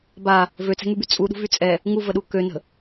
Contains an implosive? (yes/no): yes